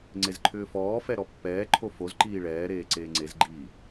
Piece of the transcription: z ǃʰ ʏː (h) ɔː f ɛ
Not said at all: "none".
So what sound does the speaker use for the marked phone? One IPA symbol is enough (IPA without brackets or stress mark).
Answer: f